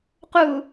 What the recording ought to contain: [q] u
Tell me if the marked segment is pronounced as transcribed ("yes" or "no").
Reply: yes